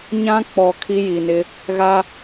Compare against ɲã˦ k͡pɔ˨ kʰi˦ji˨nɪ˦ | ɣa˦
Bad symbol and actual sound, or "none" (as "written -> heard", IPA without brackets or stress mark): none